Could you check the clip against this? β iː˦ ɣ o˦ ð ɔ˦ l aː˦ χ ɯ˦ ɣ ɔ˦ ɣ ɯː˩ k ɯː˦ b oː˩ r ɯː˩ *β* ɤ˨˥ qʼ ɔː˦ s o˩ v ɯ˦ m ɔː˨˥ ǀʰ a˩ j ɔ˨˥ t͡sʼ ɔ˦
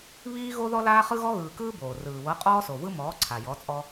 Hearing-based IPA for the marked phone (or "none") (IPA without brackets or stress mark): β